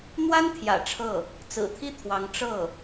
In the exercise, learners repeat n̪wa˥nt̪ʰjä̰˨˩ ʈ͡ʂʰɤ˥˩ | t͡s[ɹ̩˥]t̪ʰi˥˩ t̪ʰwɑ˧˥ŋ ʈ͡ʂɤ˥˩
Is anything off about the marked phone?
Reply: yes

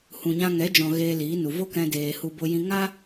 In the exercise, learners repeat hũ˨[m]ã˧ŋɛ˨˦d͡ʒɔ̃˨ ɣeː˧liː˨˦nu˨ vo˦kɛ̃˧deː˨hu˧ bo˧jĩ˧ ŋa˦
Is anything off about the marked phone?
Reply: yes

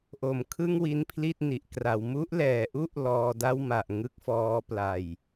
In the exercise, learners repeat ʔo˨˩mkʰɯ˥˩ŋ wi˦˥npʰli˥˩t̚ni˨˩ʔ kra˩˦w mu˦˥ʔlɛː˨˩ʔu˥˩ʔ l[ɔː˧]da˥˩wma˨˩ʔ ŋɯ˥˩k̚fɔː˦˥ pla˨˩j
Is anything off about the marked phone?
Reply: no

